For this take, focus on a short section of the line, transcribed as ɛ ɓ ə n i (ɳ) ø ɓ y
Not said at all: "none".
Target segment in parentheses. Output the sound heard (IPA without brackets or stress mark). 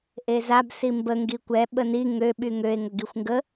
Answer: ŋ